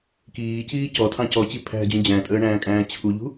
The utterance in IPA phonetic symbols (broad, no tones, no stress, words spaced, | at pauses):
kiːciː cɔtʰɑ̃ cɔt͡ɕi pʰæ̤d͡ʑũ d͡ʑæ̃tʼəːɳæ̃ːkʼæ̃ː t͡ɕʰuʎṳ